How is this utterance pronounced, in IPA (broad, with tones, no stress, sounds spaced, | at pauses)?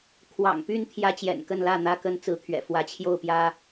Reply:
kʰ w ɑ̰˨˩ ŋ p y˦ n t̪ʰ j ä˦ t͡ɕ j ɛ̰˨˩ n k ə˥˨ n l ä˥˨ n̪ ä˦ k ə˦ n t͡s ɹ̩˨˦ t̪ʰ ɥ ɛ̰˨˩ f w ä˨˦ t͡ɕʰ j o˥˨ ʊ̯ p j ä˦